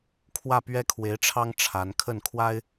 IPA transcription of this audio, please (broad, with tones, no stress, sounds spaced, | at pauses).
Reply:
kʰ w ä˥˩ p ɥ ɛ˥ kʰ w e˧˥ ɪ̯ ʈ͡ʂʰ ɑ˥ ŋ ʈ͡ʂʰ a˧˥ n kʰ ə˥˩ n kʰ w a˥ ɪ̯